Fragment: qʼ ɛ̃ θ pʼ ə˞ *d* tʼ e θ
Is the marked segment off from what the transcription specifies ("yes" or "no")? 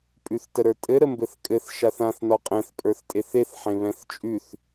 yes